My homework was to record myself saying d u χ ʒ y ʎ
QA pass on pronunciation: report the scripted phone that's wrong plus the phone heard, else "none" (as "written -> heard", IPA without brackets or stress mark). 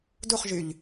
none